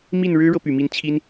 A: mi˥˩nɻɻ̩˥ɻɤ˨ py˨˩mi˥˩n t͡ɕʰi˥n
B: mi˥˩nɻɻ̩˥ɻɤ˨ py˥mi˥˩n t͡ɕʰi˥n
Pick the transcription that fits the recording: A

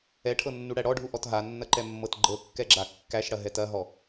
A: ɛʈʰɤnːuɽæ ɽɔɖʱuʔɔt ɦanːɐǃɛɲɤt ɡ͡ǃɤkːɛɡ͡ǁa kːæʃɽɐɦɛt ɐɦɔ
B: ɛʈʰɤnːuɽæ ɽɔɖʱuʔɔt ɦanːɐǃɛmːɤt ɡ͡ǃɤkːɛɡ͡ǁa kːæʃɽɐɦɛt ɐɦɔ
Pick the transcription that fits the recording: B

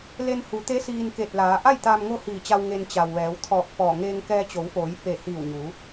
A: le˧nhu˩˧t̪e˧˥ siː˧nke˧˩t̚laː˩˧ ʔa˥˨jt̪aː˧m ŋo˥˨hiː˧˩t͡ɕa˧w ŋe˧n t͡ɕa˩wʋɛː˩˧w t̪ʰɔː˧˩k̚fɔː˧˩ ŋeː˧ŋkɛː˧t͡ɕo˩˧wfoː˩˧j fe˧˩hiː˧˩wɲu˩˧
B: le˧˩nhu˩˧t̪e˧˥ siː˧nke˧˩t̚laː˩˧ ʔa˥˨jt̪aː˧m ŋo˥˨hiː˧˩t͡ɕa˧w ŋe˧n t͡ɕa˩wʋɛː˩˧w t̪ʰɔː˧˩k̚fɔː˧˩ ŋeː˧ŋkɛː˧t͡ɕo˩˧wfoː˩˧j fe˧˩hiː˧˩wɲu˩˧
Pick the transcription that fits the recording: A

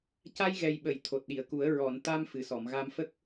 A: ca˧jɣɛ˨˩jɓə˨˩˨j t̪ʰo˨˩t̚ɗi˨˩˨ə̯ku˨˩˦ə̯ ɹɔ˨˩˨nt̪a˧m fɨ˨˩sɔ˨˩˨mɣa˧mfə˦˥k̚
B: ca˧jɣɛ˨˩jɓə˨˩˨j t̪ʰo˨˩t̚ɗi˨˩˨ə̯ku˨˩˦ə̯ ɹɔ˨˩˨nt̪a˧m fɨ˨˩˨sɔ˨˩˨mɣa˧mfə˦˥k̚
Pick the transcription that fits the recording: A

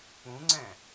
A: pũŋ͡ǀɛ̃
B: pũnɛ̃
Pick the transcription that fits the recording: A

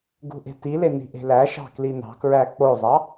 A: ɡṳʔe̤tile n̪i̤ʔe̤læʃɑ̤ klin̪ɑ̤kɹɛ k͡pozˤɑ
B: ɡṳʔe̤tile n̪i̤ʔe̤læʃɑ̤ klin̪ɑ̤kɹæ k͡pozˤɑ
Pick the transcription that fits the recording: B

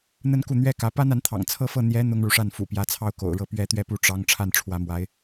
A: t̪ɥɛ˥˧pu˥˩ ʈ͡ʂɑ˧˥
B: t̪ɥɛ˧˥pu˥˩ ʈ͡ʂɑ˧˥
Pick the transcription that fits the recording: A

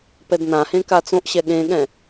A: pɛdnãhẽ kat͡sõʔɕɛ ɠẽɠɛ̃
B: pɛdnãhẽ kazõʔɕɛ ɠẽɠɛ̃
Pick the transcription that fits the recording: A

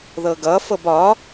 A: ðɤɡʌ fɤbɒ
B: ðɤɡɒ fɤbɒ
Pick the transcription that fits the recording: A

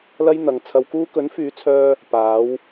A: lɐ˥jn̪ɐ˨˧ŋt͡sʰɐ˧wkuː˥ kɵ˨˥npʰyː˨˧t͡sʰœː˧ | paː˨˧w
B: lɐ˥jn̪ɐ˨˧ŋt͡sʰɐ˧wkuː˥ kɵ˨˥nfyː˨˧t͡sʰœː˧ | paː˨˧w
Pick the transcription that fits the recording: B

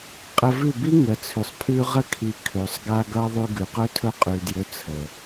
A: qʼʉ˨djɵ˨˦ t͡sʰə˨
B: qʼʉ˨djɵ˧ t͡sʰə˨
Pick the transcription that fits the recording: A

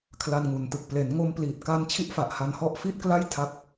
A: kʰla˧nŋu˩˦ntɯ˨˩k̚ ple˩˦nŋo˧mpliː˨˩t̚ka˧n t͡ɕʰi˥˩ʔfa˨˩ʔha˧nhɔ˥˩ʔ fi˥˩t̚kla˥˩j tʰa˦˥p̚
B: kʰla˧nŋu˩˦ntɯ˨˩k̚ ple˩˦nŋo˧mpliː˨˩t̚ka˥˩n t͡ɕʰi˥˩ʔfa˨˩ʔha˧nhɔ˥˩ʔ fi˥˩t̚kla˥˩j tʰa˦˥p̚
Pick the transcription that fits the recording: A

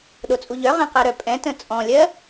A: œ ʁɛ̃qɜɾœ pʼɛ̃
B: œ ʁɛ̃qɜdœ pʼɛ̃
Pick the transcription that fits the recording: A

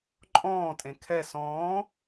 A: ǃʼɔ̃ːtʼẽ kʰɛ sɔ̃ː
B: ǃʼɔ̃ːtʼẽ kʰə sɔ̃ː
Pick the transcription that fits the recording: A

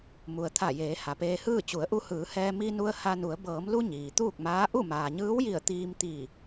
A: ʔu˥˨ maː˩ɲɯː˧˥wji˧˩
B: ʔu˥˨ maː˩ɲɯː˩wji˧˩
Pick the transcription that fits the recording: A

